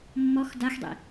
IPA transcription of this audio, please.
mː ɔ x d a x dˤ ḭ

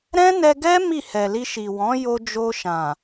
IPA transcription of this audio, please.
ɾ ɛ̃˦ n ɛ˧ ɡ ɛ˦ m i˦˨ h ɛ˨ l i˧ ʃ i˨ w ɔ̃˨˦ j o˧ d͡ʒ o˧ ʃ ã˨

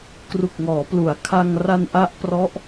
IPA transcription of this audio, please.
k r u˨˩ k̚ ŋ ɔː˩˦ p l u˩˦ a̯ kʰ a˧ ŋ r a˧ n ʔ a˦˥ ʔ p r ɔ˦˥ ʔ

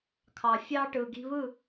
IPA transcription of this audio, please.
kʰ ɑ˨ fʲ ɑ˧ ʈ ɯ˨ ɡ i̤˧ β ɯ˦˨

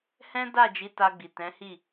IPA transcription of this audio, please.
h ɛ̃˦ d a˦˨ d͡ʒ i˨˦ t a˧ ɡ͡b i˨ t ɛ̃˨˦ h i˦˨

